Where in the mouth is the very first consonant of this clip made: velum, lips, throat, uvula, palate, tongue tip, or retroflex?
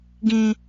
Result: velum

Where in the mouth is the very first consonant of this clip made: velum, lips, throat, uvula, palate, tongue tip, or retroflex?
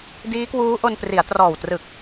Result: tongue tip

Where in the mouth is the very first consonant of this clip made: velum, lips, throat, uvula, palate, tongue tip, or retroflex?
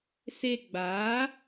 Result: tongue tip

